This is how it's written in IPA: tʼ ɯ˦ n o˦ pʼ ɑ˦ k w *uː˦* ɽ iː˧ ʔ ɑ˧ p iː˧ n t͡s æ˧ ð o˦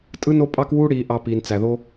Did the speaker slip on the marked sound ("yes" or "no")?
no